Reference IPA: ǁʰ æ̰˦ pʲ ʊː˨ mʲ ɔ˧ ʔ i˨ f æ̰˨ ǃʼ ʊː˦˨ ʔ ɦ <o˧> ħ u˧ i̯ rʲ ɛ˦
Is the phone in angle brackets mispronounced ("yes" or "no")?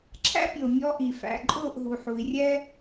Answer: yes